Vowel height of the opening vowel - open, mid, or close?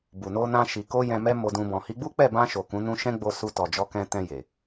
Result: close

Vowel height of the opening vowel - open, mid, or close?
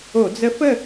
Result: mid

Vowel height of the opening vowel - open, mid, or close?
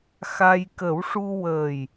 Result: open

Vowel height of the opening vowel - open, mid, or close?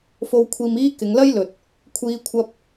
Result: mid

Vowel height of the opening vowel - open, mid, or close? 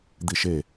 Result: close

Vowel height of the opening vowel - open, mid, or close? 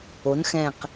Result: mid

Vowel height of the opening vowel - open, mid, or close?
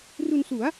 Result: close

